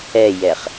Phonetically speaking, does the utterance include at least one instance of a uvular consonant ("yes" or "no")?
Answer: yes